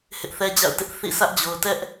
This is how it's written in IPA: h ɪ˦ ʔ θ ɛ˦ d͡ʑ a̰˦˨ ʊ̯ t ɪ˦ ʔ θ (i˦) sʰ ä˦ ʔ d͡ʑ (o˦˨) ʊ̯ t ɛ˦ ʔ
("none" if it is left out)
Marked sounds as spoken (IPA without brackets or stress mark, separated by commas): ḭ˦˨, o˨